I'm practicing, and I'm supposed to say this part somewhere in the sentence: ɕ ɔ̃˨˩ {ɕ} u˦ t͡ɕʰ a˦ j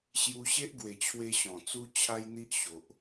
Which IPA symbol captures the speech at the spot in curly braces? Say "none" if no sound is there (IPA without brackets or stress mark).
t͡s